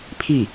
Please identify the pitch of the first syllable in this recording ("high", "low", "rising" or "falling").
falling